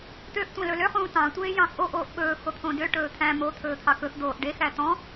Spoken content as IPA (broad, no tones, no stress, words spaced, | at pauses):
t̪øʔ tʷɑ̃lɵlø χũːtɑ̃ tʷeːjɑ̃xʔo ʔoːʔɓɵː xot̪ʰõdø ʈɵːt̪ʰæ̃ mo t̪ʰɵːt̪ʰɑkɵx d̪oːʔɖex æt̪ɔ̃